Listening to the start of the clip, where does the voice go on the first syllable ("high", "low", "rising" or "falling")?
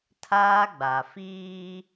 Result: high